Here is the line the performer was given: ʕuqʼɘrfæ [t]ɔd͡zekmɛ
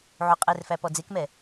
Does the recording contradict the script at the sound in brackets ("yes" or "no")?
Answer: yes